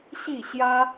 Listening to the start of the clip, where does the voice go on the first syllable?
falling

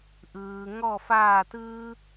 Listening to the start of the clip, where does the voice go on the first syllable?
low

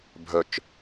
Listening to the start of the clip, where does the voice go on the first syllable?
low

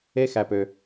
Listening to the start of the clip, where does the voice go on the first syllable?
high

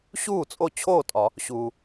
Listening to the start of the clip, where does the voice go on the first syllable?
falling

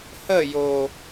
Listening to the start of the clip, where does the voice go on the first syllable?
falling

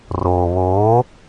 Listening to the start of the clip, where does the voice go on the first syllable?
low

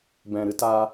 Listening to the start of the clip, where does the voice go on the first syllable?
low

